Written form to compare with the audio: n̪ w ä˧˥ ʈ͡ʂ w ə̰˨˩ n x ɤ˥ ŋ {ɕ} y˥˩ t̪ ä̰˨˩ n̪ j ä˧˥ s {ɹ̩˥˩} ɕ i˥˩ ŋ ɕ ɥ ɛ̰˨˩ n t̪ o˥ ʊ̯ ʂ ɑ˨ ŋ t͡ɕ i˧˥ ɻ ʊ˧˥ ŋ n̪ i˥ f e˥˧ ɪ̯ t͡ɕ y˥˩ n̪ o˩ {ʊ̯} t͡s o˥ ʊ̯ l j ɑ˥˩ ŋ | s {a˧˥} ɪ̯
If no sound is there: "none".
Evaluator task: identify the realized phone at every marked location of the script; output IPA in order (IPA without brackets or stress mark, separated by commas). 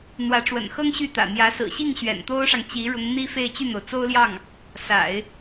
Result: ɕ, ɹ̩˨˩, ʊ̯, a̰˨˩˦